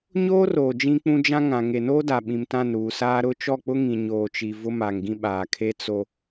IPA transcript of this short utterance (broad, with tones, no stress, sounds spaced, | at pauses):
ɲ oː˦ r oː˨ d͡ʒ ĩ˦ k͡p ũ˦ d͡ʒ ã˦ ŋ ã˨ ŋ e˨ n oː˦ d a˨ ɓ ĩ˨ m t ã˦˨ n ɾ uː˨ s aː˦ ɾ ʊ˦˨ t͡ʃ ɔ˦˨ k͡p ʊ˦ ŋ ĩ˨ ɲ oː˨ t͡ʃ i˨ v ʊ˦ m a˨ ŋ ɡ ĩ˦ ɓ aː˨ kʰ e˦ t͡s o˦